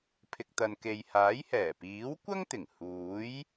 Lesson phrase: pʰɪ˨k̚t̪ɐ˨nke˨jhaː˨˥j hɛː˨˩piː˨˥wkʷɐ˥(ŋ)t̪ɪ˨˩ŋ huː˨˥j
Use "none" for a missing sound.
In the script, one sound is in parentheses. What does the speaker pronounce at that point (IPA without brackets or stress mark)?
ŋ